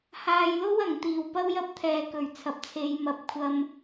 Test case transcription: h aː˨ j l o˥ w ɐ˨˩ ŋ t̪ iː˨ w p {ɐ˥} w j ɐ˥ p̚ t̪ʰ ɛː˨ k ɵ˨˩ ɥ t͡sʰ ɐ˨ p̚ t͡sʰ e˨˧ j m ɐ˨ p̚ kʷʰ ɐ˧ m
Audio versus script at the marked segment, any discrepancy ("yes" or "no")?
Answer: no